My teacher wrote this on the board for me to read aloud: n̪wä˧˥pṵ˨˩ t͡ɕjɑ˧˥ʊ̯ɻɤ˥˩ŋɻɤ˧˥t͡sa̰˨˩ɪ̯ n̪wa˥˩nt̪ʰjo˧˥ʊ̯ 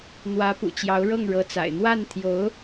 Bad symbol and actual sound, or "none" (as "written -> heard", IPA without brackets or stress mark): none